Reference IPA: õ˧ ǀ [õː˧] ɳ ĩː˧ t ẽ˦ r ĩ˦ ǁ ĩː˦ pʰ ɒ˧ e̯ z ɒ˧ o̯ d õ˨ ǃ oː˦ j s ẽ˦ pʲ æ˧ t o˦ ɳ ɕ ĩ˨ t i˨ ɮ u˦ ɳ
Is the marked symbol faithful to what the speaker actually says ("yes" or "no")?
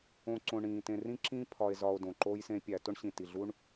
no